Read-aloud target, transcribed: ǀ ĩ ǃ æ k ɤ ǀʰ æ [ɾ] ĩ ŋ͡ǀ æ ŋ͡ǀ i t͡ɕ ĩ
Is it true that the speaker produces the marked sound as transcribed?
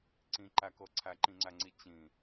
no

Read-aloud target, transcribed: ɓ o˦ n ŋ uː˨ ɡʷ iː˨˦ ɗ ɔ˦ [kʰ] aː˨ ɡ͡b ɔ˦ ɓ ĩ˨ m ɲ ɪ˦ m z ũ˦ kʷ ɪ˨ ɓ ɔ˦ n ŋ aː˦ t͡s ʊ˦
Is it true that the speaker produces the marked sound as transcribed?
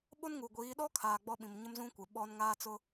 yes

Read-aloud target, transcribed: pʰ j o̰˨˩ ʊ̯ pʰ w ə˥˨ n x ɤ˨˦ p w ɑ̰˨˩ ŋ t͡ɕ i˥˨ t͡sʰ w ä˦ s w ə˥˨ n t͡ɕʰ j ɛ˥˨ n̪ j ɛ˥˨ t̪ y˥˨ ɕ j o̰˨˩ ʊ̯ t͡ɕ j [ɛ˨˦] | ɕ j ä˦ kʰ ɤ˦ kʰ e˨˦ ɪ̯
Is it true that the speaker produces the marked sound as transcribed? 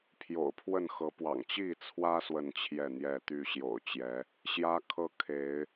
yes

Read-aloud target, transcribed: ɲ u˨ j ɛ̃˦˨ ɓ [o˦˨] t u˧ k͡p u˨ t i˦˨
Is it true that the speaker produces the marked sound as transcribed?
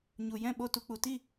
yes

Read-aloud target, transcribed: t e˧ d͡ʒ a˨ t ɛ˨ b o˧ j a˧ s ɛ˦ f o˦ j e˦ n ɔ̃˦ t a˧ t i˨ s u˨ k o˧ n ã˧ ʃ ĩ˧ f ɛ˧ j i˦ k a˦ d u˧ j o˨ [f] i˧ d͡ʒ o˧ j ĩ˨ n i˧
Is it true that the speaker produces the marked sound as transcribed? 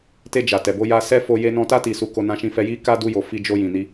yes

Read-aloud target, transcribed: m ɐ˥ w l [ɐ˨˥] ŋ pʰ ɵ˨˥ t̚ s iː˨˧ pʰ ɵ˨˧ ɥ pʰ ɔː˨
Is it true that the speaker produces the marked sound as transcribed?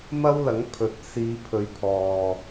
yes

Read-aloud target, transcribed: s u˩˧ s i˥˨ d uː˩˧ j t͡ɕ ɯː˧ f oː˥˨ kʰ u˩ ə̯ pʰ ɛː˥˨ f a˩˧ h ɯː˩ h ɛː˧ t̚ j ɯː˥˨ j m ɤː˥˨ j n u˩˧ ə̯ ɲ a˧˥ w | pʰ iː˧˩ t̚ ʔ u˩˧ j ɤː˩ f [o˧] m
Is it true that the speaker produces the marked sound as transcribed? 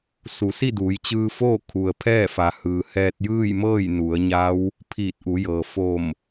no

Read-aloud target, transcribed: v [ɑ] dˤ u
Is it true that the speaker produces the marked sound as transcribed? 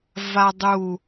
no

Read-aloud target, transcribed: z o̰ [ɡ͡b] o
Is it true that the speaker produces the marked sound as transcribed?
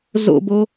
no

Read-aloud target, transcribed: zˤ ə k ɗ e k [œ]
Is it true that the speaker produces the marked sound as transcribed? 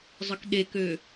no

